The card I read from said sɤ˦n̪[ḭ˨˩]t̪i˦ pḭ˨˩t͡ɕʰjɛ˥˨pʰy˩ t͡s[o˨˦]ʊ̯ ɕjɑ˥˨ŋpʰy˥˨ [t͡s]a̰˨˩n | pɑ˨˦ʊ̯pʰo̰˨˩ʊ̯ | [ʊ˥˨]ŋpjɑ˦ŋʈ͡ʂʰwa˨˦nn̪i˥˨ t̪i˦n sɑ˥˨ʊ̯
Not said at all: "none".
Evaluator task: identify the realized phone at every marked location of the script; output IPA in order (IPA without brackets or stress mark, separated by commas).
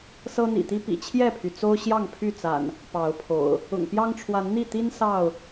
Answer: ḭ˨˩, o˦, t͡s, ʊ̰˨˩